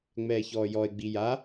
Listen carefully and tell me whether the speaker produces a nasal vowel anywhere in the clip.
no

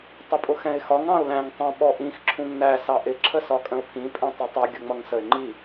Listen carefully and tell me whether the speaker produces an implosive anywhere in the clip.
yes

